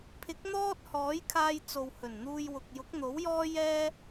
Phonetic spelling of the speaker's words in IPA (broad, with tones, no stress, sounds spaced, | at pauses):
pʰ ɪ˨˥ k̚ n̪ ɔː˥ t̚ h ɔː˨˥ j kʰ aː˧ j t͡s o˨ w h ɵ˨˩ n n̪ uː˧ j w ʊ˨ k̚ j ʊ˨˥ k̚ n̪ o˨˥ w j ɔː˥ j ɛː˥